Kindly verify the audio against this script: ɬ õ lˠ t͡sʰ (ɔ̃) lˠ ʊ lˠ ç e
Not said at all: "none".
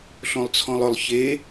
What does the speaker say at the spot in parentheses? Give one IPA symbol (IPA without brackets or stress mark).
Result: ɔ̃